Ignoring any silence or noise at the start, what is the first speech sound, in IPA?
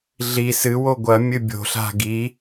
ɮ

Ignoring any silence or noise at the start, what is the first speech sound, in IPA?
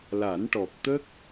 l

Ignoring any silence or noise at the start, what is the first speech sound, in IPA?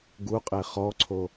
ɡ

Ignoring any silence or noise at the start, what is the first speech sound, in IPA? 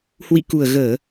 h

